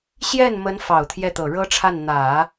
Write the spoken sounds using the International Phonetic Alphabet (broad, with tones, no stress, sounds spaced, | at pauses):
ɕ j ɛ˥˩ n m ə˧˥ n f ɑ˨˩ ʊ̯ t̪ʰ j ɛ˥˩ t̪ ɤ˨˩ ɻ ɤ˥ ʈ͡ʂʰ a˥˩ n n̪ ä˨˩˦